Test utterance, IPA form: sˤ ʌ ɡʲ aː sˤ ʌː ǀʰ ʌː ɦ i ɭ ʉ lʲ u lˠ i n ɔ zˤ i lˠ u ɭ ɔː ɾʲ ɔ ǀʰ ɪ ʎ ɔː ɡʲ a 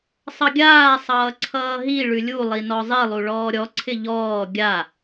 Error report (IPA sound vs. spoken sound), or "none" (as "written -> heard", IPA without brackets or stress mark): none